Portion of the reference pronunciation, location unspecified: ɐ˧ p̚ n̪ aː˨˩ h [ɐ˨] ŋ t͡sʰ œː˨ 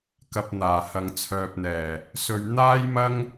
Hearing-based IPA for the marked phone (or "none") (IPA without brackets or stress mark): ɐ˨